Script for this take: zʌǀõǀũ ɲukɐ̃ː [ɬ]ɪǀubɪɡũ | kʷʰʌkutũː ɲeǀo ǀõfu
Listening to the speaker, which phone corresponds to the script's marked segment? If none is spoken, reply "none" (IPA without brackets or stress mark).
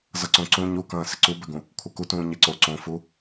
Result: s